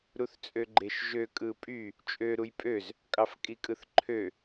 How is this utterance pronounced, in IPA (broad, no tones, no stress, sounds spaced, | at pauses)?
ɾ u θ t͡sʼ ø ɡ͡ǃ e ʃ ʒ ø kʼ ɯ pʼ y | t͡ʃʼ ø ɾ u j pʼ ø z | kʼ ɑ f kʼ i kʼ ɯ θ ǃʰ ø